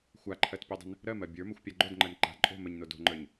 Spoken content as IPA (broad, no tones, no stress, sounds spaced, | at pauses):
xʷ a ǃʰ ɜ t pʲ o dˤ ə̤ n | ɾ ɜ m ɜ bʲ ə˞ m ə xʷ pʲ a ɡ͡ǃ o d ŋ͡ǃ ɜ n ǃ a̤ ǃʼ o̤ m ə ɲ n o d o̤ ŋ͡ǃ ə˞ ɲ